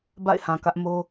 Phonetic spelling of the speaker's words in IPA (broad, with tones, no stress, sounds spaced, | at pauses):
b a̰˦˨ ɪ̯ h ã˨ k ä˦ ʔ m o˦